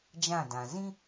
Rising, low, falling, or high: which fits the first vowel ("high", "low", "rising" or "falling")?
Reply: falling